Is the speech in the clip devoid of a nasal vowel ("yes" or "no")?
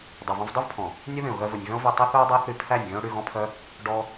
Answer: no